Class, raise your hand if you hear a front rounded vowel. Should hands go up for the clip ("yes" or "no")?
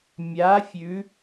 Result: no